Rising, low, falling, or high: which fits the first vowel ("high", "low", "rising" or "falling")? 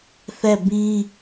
falling